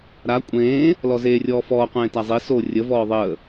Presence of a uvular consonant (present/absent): present